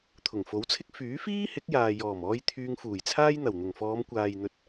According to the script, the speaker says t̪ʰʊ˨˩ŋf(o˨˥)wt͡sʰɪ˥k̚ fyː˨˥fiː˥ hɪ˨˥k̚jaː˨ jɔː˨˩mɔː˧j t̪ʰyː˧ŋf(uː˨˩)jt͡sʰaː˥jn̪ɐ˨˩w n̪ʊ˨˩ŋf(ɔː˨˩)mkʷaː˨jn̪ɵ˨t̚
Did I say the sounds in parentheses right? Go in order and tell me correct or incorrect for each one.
correct, correct, incorrect

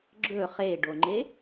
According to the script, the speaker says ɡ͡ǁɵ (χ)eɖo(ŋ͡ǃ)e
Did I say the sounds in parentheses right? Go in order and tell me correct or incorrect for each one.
correct, correct

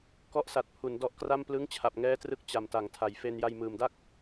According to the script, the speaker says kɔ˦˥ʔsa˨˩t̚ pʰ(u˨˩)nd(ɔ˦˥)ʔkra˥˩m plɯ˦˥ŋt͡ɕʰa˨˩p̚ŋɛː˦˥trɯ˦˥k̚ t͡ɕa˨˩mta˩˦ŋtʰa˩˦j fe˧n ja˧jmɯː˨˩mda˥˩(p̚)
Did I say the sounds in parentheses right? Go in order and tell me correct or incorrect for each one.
incorrect, correct, incorrect

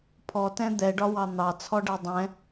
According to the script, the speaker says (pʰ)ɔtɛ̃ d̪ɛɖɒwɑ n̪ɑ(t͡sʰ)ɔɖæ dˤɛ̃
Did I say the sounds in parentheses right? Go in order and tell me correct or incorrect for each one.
correct, correct

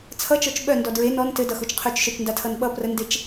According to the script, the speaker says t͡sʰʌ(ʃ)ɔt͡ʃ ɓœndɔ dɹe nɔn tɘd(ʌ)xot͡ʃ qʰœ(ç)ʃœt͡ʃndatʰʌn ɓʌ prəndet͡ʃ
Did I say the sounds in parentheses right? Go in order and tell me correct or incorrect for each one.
incorrect, correct, incorrect

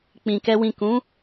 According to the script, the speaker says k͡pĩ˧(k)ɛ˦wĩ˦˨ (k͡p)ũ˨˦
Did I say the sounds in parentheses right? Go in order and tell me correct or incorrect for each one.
correct, incorrect

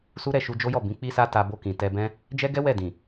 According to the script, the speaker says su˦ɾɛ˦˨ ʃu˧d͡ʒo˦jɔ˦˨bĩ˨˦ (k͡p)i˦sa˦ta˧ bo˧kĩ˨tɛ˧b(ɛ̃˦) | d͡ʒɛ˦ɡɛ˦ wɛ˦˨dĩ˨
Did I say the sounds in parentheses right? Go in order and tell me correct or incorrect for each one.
correct, correct

